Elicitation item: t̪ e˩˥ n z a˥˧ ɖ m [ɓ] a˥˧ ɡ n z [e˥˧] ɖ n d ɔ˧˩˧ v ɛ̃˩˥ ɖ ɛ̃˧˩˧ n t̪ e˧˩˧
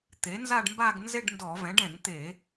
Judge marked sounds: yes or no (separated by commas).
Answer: no, yes